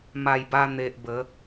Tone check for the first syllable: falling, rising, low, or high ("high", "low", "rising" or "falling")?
low